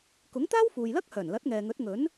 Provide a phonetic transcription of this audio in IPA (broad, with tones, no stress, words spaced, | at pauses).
kʊ˨˥ŋt̪aː˥wfuː˨jlɐ˥k̚ hœː˨˩nlɐ˨˥t̚ŋɛː˨ŋɵ˨˥t̚ ŋɵ˨˥n